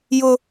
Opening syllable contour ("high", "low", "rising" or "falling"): high